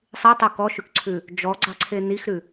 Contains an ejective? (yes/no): no